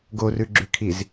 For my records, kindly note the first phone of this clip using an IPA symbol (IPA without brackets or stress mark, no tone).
ɡ